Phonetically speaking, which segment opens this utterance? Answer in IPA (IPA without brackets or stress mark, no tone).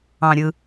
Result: ɑ̃